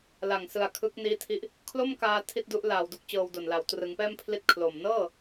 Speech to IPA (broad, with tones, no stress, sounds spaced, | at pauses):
l a˨˩ ŋ s ɯ˨˩ a̯ kʰ ɯ˦˥ k̚ n iː˦˥ tʰ i˦˥ ʔ | kʰ l o˥˩ m k aː˧ tʰ i˥˩ t̚ d u˦˥ ʔ l aː˨˩ w d u˥˩ k̚ t͡ɕ ɤː˧ w d o˨˩ n l a˨˩ w t r ɯ˩˦ ŋ p ɛː˥˩ m pʰ l i˥˩ t̚ kʰ l o˨˩ m n ɤː˥˩